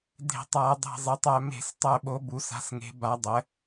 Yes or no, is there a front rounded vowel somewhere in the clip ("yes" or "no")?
yes